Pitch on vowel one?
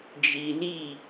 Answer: low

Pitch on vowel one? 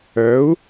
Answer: rising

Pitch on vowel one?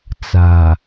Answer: low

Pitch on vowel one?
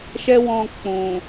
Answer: high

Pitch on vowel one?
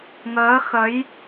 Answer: rising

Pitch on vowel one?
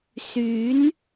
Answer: rising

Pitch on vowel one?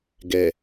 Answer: low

